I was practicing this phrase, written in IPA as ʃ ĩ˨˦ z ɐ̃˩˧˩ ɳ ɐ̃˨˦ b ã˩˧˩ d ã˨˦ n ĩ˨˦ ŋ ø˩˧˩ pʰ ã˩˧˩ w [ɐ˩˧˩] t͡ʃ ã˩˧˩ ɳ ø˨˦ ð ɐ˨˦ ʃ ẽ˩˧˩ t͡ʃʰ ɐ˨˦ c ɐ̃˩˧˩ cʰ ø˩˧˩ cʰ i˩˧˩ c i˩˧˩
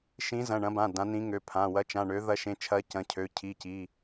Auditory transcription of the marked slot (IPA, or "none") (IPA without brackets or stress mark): ɐ˨˦